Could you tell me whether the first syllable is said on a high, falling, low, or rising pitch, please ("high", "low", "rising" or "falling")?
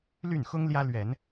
falling